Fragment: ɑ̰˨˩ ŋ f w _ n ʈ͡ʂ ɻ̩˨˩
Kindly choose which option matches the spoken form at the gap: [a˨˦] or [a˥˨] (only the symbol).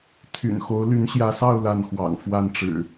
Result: a˥˨